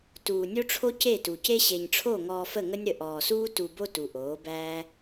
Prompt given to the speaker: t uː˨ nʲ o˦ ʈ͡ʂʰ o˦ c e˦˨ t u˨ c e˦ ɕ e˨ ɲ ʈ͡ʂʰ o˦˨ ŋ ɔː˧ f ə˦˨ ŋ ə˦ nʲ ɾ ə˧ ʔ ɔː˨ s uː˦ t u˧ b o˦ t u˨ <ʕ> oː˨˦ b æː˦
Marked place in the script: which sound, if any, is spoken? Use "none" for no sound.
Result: ʔ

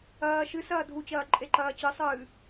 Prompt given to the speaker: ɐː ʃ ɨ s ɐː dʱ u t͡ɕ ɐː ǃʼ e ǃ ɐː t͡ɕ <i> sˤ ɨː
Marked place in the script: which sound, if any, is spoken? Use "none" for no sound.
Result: ɨ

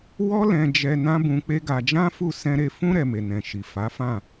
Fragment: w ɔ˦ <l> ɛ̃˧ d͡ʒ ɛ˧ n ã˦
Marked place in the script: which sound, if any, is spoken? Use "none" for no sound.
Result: l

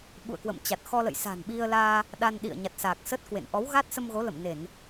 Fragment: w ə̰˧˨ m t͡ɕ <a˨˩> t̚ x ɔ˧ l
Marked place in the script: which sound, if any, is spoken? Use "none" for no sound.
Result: a˨˩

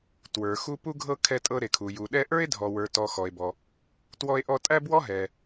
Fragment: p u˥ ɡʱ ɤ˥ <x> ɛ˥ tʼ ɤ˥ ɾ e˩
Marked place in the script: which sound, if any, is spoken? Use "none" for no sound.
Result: kʰ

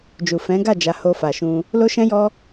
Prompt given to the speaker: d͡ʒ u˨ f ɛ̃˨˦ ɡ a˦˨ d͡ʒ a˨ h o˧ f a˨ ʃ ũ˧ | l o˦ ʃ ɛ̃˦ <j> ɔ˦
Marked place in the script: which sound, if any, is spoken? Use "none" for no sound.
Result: j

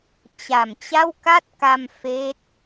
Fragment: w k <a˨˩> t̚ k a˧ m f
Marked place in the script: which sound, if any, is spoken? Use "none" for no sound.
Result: a˥˩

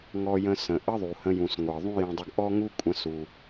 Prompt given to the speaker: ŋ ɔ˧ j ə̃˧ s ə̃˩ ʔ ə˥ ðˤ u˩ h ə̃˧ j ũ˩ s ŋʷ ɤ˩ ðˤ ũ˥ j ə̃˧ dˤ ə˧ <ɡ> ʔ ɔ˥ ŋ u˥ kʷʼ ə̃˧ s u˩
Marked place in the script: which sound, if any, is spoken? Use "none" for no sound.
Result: ɡ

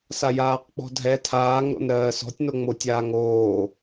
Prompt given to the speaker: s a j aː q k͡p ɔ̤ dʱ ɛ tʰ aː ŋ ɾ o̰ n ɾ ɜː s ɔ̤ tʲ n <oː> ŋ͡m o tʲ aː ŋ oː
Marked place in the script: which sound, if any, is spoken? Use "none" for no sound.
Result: o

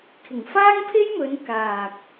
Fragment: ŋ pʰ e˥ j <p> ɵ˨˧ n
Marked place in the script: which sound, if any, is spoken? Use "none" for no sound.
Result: m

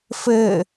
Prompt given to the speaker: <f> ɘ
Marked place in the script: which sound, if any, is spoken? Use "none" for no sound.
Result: f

